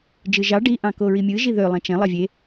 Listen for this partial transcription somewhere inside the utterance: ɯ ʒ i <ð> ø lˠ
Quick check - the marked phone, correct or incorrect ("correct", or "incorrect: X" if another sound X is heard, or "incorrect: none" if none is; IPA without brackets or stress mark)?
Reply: correct